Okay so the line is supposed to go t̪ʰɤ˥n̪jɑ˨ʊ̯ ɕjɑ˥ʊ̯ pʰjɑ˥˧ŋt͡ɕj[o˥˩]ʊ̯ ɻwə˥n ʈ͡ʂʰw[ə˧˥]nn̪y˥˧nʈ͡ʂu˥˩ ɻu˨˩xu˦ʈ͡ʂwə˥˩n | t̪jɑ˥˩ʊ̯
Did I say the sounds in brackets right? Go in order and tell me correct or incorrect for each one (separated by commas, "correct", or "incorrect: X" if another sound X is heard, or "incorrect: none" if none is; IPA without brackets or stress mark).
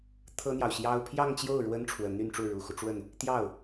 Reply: correct, correct